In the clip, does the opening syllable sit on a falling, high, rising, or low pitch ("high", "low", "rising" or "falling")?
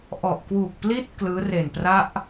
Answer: low